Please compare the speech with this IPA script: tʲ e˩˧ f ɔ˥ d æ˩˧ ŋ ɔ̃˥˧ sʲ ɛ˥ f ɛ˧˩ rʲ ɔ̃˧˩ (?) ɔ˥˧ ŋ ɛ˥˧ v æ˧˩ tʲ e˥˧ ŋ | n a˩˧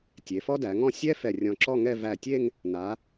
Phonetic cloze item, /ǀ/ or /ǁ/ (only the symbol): ǁ